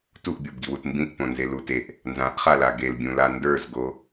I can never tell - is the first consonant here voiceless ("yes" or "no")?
yes